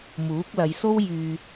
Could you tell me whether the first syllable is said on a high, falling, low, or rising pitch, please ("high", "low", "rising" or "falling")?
rising